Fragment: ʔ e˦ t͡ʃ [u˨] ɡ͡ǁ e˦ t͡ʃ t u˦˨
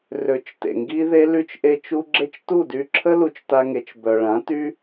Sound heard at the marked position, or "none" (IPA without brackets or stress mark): u˦